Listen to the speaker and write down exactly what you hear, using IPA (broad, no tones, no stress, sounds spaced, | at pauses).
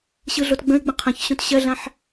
ɕ ɯ ɮ o t ɡ͡b ə̃ ɪ̯ ɡ͡b ə̃ qʰ ə̃ ç ɕ õ t ɕ ɜ ɮ ã ħ